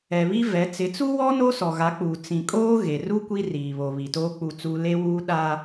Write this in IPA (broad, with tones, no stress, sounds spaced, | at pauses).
ɛ˨ β i˦ v ɛ˨˦ t͡s ɪ˨˦ t͡s u˦ w ɔ˦ n o˦ s ɔ˨ ɣ a˨˦ k͡p uː˨ t͡s ĩ˨ kʼ oː˦ ɣ e˨ r u˦ kʷ i˦ r iː˨ β o˨ β i˨ t oː˦ k͡p u˦˨ t͡s u˦ l e˦ w uː˦ ɗ a˦